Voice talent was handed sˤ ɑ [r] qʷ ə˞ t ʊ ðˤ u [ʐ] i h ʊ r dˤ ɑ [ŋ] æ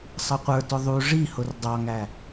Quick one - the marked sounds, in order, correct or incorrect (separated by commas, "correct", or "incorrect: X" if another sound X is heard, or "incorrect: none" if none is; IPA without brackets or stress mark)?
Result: incorrect: none, correct, correct